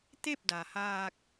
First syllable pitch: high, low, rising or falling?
falling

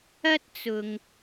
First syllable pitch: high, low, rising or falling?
high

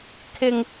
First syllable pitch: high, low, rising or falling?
low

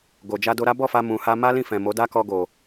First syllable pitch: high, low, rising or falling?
low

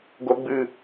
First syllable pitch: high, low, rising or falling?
low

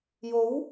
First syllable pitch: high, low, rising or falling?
rising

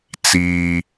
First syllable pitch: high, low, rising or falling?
high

